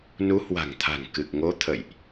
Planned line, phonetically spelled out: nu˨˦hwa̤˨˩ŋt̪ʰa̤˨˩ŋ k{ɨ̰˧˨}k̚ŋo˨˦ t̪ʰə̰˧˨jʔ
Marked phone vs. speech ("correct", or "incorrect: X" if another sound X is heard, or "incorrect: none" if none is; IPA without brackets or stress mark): incorrect: ɨ˨˩